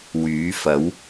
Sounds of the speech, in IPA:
w yː˨˥ f ɐ˨˥ w

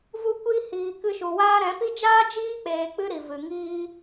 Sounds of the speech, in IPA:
v u˧ kʷ i˧ h iː˨ k ɨ˧ ʃ u˨ w aː˦ ɾ ɛ̃˨˦ p i˦ d͡ʒ aː˦ d͡ʒ iː˦ k͡p eː˨ k͡p ɨ˧ ɾ i˨ v ɨ˨ ŋ iː˧

